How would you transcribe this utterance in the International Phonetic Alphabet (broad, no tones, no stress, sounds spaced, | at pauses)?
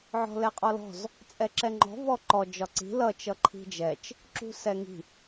ʕ ɔ̤ l ɛ qʼ ɔ l ɔ̤ z | t͡sʼ ɛ ǁ ɛ ŋ͡ǃ ɔ̤ v ɔ ǃ ɔ d͡ʒ ɒ ǀ i̤ l ʌ t͡ʃ ʌ ǃʰ i̤ d͡ʒ ɛ t͡ʃ | ǁ ṳ s ɛ ŋ i̤